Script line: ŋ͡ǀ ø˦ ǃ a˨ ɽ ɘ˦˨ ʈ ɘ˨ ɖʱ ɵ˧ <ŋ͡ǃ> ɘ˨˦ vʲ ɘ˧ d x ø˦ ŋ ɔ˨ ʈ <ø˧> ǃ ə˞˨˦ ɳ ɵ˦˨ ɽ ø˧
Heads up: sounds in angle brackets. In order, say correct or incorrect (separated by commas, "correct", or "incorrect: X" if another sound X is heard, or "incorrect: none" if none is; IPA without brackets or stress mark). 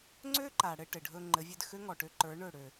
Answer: correct, correct